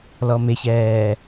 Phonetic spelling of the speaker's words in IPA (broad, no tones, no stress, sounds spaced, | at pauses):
l ɔ m ɪ ç ɛː